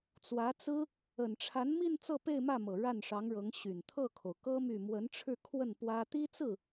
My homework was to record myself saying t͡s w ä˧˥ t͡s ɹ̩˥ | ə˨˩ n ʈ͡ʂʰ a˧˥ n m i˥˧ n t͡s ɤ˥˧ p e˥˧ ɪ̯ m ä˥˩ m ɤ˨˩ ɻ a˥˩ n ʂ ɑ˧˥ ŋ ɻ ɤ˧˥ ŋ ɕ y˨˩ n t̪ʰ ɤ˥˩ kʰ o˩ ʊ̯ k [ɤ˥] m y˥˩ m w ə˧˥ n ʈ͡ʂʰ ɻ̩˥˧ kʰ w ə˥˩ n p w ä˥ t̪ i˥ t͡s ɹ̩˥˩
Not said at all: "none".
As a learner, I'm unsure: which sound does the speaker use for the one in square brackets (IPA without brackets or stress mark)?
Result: ɤ˥